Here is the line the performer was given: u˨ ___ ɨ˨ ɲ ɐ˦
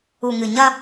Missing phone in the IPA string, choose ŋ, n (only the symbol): ŋ